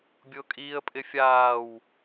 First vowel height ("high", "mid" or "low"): high